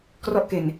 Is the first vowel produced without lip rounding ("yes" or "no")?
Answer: no